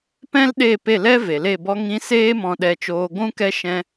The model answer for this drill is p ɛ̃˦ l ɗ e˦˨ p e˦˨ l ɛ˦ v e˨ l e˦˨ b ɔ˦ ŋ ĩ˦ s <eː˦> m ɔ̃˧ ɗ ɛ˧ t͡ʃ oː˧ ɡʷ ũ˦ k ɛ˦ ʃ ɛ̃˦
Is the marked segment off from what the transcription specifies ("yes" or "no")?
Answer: no